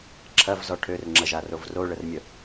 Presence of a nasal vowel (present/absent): absent